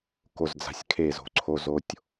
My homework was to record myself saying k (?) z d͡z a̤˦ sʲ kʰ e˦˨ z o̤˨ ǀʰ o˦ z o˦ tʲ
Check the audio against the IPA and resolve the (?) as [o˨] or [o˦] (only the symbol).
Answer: o˦